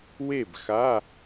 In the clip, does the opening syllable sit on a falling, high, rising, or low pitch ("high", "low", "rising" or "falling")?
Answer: falling